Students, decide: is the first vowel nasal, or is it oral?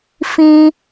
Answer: nasal